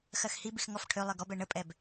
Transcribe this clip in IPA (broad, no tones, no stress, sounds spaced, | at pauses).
x ɜ x h i b i x ŋ ɔ f ʈʰ ø lˠ ɪ ɡ ɔ b ɛ ɳ ə pʼ ɛ b